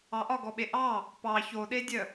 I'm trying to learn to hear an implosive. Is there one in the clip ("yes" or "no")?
yes